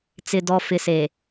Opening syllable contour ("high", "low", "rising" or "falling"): low